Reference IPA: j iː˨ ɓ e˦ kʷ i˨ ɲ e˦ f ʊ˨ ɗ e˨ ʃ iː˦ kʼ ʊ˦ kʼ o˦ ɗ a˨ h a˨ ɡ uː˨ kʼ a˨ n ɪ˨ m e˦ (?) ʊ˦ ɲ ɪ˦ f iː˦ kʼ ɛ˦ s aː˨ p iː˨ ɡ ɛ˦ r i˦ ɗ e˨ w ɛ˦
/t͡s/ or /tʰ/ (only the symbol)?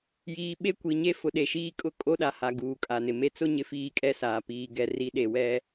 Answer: t͡s